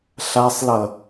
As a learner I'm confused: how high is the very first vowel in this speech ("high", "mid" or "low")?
low